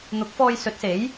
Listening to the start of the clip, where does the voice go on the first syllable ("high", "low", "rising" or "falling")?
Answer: rising